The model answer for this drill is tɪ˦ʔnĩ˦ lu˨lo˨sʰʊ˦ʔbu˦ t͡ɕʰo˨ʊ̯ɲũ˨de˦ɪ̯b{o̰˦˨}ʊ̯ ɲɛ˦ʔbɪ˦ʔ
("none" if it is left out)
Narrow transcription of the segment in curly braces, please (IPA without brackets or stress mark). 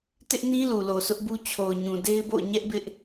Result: o̰˦˨